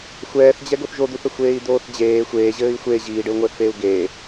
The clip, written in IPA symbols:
xʷɛːθd͡ʑɛ ɡoθʒod̪uθə xʷeːi̯d̪oːθd͡ʑeː xʷeː ʑɘːi̯xʷe ʑiːɖɘu̯ŋʷɘːθfeːu̯ ɡeː

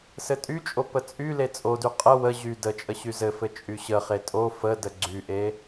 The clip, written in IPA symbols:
sɘtʼyt͡ʃʼo pət͡sʼyle t͡sʼody qʼə wə ʑy dət͡ʃʼə ɕyzɘfɘ t͡ʃʼyɕəχe tʼo fədə ɡ͡ǀyʔe

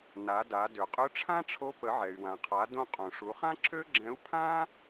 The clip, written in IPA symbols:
na˩˧da˩˧ dø˩qʼø˧˥ʈ͡ʂʰã˥ʈ͡ʂʰo˧˥ pə˩˧ʕɛ˩y̯wã˩qʰa˩˧ dõ˧qʼõ˩ʂu˩˧χã˥ ǁʰø˥ɡ͡ǁɛ̃˧˥u̯ pʰã˥

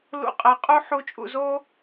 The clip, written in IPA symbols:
lṵ˥˨qʼɛ˧˥ qʼu˥ħu˧˥t͡ʃʼṵ˧zo˥

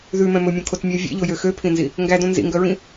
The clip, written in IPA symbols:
ðʉmɛ̃ mɵmʲõkʰotmʲæ vʲḛʎojø xøpʰĩnzi | ŋɡædõ nzḭŋɡœɹĩ

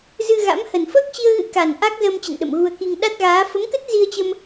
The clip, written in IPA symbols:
zɨ˧ɣa̰˧˥m hə˨˩nfəː˦˥k̚t͡ɕi˧ə̯ɣɨ̰˧˥ ka˨˩n ʔa˦˥k̚zəː˧mt͡ɕə̰˧˨nɗə̰˧˨m ɣu˧ə̯ki˧ŋ ɗa˦˥t̚ɣaː˨˦ fə˨˦mkə˦˥t̚ zi˧ə̯t͡ɕə˧m

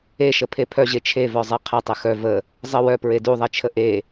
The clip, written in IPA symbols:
eʃə pʰepʰœʑe t͡ʃʰevœzˤe qʰə tˤexœ və | zˤə wœ pɹeduðˤet͡ʃʰə ʔe

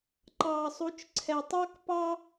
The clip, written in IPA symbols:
ǃɑː˨sˤu˨˦t͡ʃǀʰɛ˨tˤɑ˦k pɑ˦

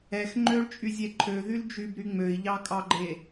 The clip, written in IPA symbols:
ɛx ŋ͡ǃøɭt͡ʃʼyzʲɛ ǃʰøðyl d͡ʒybɾy ŋ͡møi̯ʎɑkʼɑɡ͡ǃe

